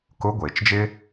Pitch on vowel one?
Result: rising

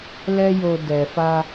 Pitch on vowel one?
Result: high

